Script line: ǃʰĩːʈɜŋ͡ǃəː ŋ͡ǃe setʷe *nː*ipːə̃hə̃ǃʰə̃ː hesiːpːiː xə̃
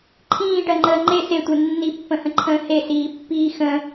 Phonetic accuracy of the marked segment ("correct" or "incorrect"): correct